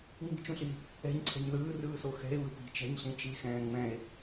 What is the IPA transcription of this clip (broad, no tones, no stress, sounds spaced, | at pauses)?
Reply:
ŋ͡m i̤ t͡ʃ ũ ɬ i | ɛ̤ ɲ ǀʰ ɛ̤ ɲ ð ɯː r ɯː s o x ɛ̤ e̯ β ɯ p i̤ t͡ʃ ɛ̤ ɲ ɬ ĩ t͡ʃ i x ɛ̃ː ŋ͡m ɛ̃ e̯